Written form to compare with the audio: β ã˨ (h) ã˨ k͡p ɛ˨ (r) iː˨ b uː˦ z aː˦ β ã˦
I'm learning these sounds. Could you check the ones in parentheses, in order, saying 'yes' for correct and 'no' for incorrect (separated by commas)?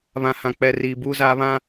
yes, yes